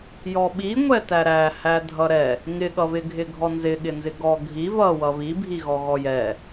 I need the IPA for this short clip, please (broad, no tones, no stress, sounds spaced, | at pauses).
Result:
j ɔ ɓ i ŋʷ ɛ t æ ɾ æ h æ dʱ ʌ ɾ ɛ | ŋ ɪ ɠ ʌ β ɪ ɡʱ ɪ ɡʱ ɔ n z ɪ ɠ ɪ n z ɪ ɡ ɔ ɡʱ i β ʌ w ʌ β i bʱ i ɣ ɔ ɣ ɔ j ɛ